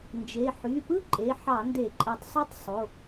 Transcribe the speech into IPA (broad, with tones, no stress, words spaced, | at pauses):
nd͡ʒe˩˧˩ ħy˩˧˩pɯ˦˥ ǃʼe˩˧˩ ħɑ˧˩˧nde˧˩˧ ǃʼæ˧˩tˤsˤu˥˨tˤ sˤo˩˧˩